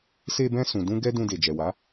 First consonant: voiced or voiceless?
voiceless